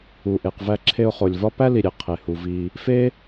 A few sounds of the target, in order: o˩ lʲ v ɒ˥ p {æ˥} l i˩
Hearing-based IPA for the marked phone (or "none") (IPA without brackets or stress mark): æ˥